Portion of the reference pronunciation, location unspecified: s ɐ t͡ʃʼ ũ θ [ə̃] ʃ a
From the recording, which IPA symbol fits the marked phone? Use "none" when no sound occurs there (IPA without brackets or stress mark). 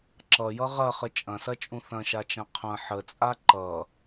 ɐ̃